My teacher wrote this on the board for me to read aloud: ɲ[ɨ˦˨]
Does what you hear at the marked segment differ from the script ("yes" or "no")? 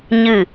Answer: no